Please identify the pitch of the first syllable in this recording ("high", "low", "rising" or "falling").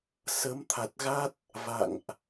rising